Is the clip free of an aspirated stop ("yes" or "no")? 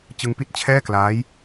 no